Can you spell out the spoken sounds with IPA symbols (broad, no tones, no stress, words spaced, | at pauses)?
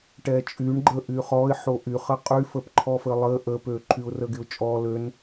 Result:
ʈɛt͡ʃʼyɳ ɡ͡ǃə ʔyχɔɪ̯ ħoʔyχə qʼyfəpǃʰɔfə lˠə ʔəpø ǃʰyʊ̯rəɡɪʊ̯t͡ʃʼɔ løn